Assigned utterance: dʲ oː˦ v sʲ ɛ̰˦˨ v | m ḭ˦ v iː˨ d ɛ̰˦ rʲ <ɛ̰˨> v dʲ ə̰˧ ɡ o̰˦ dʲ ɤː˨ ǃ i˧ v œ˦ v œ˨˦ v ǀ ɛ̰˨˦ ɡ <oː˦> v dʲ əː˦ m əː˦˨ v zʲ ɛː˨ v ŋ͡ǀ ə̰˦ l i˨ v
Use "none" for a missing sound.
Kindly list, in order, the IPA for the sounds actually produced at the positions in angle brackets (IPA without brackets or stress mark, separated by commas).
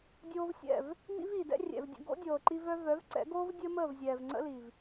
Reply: ɛ̰˨, oː˦